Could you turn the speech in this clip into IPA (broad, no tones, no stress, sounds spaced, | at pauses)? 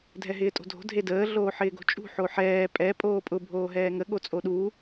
dʱ ɛ ɦ ɪː tʼ o̤ dʱ o̤ dʱ e d əː ɮ oː ħ ɪː ɡ o̤ t͡ʃʼ ṳ ħ o ħ ɛː pʼ ɛ pʼ oː pʼ ʊ bʱ oː ɦ ɛː ŋ ə ɠ o t͡sʼ o ɗ uː